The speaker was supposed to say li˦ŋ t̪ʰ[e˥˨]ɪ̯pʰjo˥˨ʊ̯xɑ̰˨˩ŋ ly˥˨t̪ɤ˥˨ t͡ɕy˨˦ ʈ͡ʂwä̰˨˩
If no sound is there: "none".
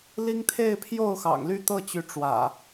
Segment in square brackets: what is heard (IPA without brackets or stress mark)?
e˥˨